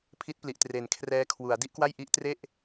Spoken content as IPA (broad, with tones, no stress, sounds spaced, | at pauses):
pʰ i˦˥ t̚ p l i˨˩ ʔ t r e˩˦ n kʰ r ɛː˧ kʰ w u˩˦ a̯ d i˥˩ ʔ k w a˥˩ j ʔ i˦˥ ʔ t r e˥˩ ʔ